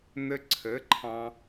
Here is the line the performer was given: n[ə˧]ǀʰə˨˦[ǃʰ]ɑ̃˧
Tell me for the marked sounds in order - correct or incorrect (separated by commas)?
correct, correct